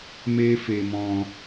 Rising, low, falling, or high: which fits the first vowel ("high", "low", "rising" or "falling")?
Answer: high